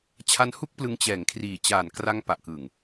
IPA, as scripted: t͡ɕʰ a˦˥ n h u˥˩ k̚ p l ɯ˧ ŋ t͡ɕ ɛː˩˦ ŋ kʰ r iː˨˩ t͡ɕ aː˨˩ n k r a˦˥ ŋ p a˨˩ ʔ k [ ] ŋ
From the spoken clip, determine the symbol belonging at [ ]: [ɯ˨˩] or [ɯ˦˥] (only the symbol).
ɯ˨˩